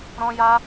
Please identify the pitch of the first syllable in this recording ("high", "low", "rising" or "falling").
high